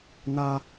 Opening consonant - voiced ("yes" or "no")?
yes